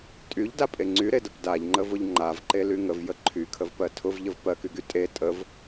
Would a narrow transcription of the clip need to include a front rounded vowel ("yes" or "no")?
yes